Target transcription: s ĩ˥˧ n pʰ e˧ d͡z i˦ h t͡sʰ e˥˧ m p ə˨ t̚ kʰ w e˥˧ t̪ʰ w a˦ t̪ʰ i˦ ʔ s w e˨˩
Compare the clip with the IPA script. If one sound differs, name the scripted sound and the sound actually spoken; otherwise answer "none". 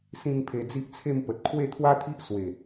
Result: h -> ʔ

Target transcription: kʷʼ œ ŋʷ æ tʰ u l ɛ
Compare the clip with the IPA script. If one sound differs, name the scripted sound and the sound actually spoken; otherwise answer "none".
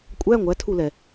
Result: œ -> æ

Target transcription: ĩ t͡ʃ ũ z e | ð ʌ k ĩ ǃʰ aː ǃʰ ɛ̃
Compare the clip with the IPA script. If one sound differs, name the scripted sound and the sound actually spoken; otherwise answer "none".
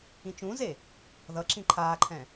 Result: k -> ǁ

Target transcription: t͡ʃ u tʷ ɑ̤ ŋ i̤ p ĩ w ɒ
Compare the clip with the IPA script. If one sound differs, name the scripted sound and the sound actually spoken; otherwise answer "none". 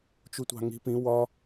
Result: none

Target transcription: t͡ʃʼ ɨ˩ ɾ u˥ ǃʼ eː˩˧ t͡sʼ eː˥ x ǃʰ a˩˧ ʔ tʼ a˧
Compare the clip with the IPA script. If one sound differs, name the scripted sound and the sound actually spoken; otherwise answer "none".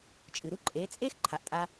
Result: none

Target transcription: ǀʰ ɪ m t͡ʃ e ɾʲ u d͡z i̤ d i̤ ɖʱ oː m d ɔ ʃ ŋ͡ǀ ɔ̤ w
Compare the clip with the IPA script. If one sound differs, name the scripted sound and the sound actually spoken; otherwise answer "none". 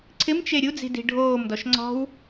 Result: none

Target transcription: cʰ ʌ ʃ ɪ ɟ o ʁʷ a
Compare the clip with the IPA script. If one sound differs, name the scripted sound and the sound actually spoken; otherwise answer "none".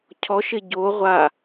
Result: ʌ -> ɔ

